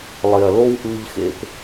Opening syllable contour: low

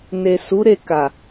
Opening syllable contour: low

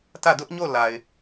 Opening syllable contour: falling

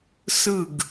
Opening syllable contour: falling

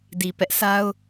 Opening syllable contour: low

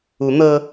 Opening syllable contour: rising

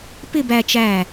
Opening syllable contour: falling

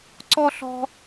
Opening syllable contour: high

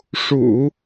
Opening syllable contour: low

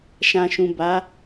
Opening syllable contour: low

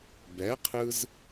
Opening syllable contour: rising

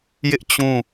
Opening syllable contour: high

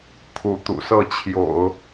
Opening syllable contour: rising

